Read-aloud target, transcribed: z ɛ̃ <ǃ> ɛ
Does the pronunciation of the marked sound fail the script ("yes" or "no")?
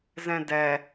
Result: yes